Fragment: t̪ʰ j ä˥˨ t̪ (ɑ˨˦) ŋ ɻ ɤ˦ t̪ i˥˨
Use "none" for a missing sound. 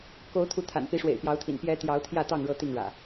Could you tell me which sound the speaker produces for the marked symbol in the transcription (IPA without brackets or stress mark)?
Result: ɑ˥˨